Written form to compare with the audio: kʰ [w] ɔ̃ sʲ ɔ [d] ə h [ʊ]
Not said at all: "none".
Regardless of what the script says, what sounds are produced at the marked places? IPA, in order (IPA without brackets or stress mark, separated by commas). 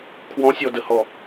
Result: w, d, ɔ